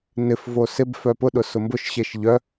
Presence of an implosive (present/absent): present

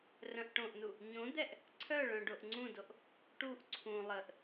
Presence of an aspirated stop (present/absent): present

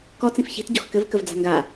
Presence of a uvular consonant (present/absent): absent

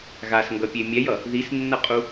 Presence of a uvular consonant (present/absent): present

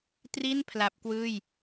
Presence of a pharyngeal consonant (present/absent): absent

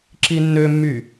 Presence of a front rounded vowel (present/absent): present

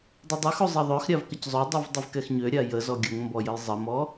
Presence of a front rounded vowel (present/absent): present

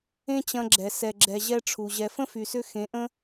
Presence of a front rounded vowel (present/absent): present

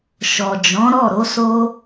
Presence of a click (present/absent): absent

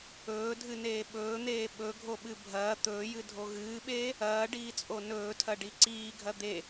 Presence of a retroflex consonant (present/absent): present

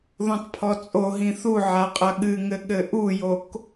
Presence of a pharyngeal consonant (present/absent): present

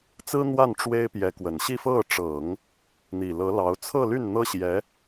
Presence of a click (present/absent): absent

